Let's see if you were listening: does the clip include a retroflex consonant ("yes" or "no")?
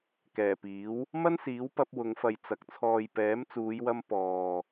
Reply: no